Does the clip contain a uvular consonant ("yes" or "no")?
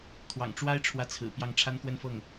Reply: no